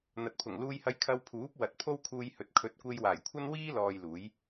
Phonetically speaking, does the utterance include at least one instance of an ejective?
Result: no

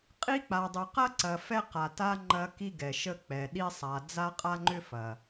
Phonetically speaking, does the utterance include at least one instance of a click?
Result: yes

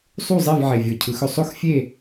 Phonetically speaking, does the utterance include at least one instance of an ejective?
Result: no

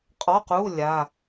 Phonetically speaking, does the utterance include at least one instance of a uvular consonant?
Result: yes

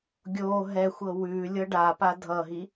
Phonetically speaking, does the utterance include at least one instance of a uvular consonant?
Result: no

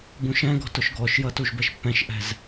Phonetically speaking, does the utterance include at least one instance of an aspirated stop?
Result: no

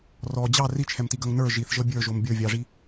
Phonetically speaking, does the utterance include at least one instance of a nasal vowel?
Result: no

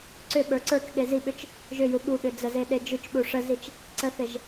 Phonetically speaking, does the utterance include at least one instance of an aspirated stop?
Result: no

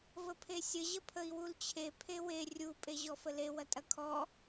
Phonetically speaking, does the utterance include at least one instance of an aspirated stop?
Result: yes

